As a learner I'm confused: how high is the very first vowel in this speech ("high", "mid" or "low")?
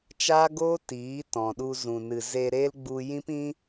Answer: low